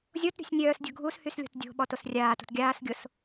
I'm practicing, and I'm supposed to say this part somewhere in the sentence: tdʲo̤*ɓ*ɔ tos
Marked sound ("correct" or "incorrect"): correct